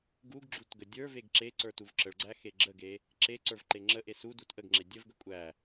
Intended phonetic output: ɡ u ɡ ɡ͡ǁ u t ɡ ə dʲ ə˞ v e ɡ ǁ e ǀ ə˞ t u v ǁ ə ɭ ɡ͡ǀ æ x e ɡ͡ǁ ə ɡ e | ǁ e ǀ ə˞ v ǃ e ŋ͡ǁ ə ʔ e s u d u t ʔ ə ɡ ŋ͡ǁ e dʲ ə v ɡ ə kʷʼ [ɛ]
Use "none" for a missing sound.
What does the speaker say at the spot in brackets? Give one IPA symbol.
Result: æ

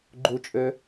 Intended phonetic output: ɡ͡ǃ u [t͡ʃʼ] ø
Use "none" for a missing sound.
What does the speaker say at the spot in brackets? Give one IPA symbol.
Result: t͡ʃʼ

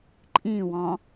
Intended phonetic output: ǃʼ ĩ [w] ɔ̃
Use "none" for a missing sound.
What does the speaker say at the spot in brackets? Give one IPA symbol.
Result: w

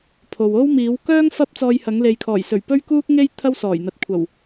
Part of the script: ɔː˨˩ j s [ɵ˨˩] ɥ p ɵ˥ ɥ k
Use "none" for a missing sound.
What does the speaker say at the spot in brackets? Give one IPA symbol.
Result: ɵ˨˩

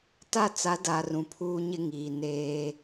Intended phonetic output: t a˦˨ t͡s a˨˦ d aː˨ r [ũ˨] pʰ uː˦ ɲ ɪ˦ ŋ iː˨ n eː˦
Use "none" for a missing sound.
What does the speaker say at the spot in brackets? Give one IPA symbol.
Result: ũ˨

